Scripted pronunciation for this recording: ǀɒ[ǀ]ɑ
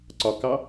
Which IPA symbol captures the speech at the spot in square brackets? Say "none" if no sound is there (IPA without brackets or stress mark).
k